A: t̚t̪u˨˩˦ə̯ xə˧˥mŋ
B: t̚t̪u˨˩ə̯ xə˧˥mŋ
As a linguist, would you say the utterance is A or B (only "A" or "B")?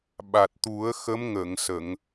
A